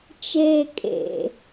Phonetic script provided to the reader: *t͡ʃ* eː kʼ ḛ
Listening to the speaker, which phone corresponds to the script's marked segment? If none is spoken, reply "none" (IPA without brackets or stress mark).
t͡ʃ